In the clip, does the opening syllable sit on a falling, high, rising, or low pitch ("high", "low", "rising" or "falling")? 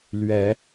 rising